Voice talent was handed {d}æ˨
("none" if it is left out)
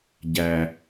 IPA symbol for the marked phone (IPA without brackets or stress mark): ɟ